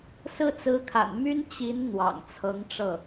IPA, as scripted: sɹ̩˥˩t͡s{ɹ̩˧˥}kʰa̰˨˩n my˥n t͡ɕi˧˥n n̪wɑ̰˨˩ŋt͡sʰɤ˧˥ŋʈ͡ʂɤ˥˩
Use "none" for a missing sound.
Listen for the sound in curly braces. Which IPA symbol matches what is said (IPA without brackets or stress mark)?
ɹ̩˧˥